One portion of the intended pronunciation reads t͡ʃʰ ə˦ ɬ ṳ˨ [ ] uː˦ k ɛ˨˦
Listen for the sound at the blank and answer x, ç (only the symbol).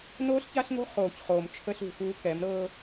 x